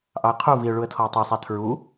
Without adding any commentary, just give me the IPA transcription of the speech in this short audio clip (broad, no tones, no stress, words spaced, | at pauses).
ʔɑə̯qʰu viʊ̯ɭuə̯tʰɔə̯ tˤɛsˤæ tʰɹu